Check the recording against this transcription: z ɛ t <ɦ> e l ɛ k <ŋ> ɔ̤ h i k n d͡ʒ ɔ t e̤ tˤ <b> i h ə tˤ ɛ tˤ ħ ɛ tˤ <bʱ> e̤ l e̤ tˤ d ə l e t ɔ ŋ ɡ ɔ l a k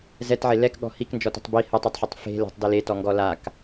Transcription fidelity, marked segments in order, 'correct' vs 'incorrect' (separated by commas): incorrect, incorrect, correct, incorrect